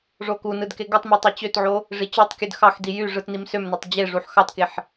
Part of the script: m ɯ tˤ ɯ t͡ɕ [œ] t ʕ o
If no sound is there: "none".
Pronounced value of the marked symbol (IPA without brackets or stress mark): ø